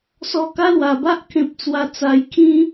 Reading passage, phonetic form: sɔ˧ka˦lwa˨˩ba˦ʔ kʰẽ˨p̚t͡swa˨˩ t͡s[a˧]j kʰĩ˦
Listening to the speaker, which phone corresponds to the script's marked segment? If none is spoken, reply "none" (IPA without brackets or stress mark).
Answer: a˨˩